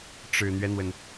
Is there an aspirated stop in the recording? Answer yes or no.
no